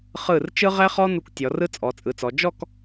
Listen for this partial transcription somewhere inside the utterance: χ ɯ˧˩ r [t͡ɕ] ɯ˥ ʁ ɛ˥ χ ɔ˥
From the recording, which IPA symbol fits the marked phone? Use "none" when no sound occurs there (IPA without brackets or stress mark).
t͡ʃ